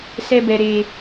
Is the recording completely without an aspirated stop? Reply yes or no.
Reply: yes